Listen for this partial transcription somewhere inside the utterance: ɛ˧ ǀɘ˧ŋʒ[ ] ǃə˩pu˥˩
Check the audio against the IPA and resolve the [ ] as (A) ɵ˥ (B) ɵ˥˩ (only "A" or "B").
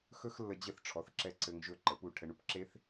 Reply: B